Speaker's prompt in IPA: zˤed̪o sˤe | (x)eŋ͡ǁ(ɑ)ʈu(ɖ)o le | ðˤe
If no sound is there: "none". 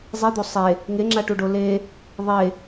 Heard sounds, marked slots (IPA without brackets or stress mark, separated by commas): ŋ, a, ɖ